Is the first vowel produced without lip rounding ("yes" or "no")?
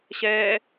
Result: yes